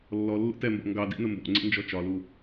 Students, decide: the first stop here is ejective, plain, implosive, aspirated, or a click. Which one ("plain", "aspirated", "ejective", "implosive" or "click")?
plain